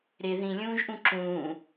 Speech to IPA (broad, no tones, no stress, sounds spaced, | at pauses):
ɾ ɪ ð ĩ lʲ ũː ʒ ʔ ũ ǁ ũː